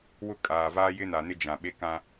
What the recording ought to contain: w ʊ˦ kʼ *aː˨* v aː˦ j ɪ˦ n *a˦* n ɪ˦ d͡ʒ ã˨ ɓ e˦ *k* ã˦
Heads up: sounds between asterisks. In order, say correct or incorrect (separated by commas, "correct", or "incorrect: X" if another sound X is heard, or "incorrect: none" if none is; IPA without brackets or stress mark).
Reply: correct, incorrect: a˨, correct